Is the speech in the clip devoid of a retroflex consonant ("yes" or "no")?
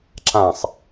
yes